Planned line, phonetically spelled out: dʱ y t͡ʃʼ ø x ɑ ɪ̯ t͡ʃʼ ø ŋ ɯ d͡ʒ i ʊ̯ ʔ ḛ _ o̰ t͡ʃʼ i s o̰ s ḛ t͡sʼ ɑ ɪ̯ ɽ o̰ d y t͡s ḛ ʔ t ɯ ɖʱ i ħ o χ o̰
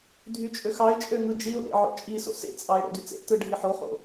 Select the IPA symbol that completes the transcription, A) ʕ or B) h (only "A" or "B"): A